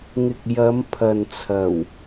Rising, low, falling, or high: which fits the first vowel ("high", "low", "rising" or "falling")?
low